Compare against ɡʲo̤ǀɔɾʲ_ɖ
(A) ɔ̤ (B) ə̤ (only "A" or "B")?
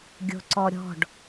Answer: A